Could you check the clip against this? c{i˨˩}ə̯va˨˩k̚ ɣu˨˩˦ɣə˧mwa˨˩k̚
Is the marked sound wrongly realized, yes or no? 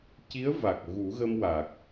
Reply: yes